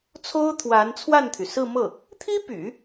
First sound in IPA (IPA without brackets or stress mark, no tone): t͡sʰ